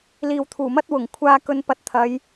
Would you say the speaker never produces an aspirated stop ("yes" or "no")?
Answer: no